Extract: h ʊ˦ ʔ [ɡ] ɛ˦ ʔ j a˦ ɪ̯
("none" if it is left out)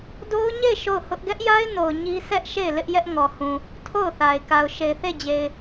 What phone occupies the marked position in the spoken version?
ɡ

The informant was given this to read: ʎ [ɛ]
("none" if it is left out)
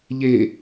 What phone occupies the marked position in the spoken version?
e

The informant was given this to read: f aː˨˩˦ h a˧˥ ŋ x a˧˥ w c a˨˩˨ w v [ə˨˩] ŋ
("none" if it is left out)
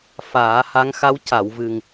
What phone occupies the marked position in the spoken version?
ɨ˨˩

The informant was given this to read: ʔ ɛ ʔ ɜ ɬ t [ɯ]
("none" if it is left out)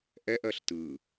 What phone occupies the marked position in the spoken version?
ɯ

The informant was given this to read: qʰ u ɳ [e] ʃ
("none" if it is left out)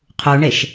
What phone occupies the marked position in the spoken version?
e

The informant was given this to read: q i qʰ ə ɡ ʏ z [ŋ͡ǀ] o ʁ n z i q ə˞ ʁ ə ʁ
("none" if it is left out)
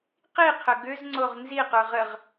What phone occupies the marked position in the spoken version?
ŋ͡ǀ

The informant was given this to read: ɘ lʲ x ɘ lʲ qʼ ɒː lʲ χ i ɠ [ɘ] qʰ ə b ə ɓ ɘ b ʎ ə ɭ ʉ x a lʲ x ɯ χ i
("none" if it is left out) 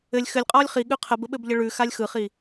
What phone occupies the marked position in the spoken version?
ʉ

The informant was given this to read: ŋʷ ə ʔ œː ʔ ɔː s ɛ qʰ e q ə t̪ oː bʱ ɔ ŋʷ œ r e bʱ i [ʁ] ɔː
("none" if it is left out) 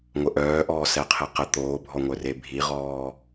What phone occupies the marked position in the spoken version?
ʁ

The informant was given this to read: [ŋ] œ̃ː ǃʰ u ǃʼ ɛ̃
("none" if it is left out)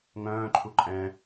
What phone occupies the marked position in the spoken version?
ŋ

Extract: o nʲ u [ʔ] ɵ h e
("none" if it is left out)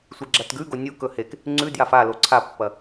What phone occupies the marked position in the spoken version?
k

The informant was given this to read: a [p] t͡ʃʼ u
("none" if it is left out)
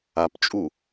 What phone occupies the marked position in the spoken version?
p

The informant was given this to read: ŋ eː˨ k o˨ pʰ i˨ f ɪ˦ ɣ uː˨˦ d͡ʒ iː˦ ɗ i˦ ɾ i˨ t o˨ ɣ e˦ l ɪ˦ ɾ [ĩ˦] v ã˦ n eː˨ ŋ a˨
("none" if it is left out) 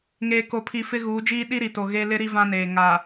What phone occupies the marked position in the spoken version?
i˦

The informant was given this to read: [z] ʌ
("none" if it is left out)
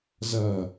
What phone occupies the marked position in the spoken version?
z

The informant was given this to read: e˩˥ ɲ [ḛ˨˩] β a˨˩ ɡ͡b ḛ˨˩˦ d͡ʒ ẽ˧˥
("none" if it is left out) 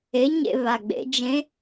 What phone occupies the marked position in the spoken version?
ḛ˦˨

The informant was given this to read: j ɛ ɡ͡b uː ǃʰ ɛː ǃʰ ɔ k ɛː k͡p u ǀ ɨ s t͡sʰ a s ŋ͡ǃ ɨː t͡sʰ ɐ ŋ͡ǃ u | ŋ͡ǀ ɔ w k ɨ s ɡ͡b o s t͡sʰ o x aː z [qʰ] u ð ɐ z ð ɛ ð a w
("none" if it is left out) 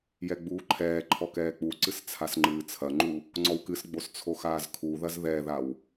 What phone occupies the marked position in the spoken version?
kʰ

